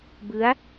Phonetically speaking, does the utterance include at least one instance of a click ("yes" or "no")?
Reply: no